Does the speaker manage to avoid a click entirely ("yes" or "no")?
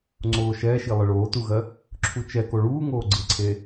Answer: no